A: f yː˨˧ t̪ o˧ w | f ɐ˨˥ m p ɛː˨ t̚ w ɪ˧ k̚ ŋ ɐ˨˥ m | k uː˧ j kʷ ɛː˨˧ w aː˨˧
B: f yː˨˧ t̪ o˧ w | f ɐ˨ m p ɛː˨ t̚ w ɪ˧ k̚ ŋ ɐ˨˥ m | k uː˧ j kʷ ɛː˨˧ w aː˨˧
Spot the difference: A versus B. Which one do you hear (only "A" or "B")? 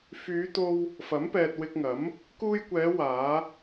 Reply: A